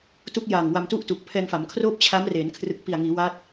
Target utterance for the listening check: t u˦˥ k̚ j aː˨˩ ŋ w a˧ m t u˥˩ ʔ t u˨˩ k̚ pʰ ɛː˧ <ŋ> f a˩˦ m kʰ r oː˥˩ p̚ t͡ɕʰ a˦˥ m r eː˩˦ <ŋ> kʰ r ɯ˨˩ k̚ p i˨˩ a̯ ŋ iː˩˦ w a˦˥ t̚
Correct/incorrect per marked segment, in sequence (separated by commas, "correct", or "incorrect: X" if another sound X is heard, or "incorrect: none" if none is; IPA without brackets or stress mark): correct, incorrect: n